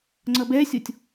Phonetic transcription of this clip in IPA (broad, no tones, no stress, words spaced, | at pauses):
ŋ͡ǀʌbɛsʲɔtʲ